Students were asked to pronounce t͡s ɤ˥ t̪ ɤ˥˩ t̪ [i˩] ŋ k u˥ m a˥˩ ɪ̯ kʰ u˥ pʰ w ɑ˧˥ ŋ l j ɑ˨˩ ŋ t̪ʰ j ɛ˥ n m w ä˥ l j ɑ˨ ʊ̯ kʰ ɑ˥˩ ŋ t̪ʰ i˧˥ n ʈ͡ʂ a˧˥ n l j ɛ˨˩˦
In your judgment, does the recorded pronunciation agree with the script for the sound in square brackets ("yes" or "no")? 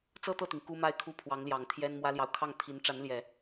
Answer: yes